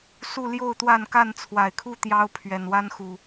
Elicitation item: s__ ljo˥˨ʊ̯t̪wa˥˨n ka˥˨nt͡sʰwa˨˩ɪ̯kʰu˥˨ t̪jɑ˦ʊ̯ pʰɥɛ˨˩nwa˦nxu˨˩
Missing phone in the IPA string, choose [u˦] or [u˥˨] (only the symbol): u˥˨